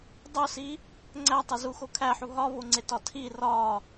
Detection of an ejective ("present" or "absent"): absent